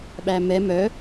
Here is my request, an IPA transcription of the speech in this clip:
ɓæmɛ mœ

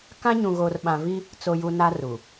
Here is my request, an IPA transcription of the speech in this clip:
kã˦ ɲũ˨ɣoː˨rɓã˨vi˦ | t͡so˨ju˨ na˦ru˨

